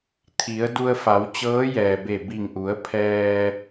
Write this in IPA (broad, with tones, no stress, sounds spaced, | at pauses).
t̪ʰ i˩˧ ə̯ d u˧ ə̯ f a˩˧ w t͡ɕ ɤː˧˥ j ɛː˩ b e˧˩ b i˧˩ ŋ ʔ u˩˧ ə̯ pʰ ɛː˧